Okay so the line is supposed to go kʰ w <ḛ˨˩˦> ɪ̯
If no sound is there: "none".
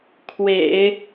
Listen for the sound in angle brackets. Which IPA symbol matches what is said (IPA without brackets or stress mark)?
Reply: ḛ˨˩˦